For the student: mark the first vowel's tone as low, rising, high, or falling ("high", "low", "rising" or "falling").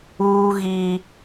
high